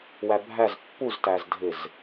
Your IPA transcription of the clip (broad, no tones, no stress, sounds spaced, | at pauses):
w æ bʱ æ z pː u z t æ z dʱ ɪ z